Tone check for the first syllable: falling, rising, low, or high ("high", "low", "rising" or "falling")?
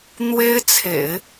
high